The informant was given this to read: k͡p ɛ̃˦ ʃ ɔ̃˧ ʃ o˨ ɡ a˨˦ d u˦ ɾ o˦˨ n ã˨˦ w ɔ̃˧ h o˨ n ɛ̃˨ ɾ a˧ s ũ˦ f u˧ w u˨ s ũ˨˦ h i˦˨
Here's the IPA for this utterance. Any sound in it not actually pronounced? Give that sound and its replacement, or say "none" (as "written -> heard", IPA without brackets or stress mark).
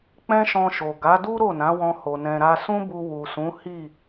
f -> b